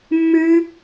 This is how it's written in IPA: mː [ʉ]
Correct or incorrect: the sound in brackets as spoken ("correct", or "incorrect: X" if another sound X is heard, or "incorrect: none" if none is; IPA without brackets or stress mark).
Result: correct